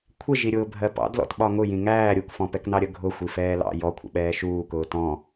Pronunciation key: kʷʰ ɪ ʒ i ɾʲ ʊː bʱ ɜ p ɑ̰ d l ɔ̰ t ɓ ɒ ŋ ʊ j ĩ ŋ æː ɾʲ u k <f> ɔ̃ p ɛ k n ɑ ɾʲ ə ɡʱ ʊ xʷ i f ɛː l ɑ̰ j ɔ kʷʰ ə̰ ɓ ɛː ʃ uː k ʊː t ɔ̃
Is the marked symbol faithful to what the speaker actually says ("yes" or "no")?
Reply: yes